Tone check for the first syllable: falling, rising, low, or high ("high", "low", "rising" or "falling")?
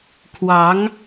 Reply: rising